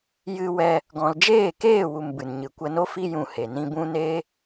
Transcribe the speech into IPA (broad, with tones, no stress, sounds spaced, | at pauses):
j ɨ˧ w ɛ˧ | ɡ ɔ̃˨ l d͡ʒ eː˦˨ k eː˦˨ w u˨ m b ɨ˨ n ɲ ɨ˨ kʷ ə˧ n o˦ f i˦ j ũ˧ h e˨ n ĩ˧ b ũ˦ n eː˦